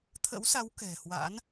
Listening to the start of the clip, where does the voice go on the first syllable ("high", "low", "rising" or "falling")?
rising